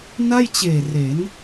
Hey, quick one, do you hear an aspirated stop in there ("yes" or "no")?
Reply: no